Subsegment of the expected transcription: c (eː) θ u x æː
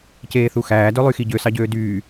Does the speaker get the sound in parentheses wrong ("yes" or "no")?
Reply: no